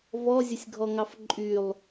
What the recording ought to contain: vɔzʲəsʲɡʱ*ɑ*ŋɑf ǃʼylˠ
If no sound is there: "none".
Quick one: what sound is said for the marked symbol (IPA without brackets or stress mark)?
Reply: ɔ